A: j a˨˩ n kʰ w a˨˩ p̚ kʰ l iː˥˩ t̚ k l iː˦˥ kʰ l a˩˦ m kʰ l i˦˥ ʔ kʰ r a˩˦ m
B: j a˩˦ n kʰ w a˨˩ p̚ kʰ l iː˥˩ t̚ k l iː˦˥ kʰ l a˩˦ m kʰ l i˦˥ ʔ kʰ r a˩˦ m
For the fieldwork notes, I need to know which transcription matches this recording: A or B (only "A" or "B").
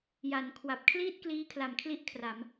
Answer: B